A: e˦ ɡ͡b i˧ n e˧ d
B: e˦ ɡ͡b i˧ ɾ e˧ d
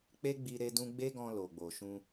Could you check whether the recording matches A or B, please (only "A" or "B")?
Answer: B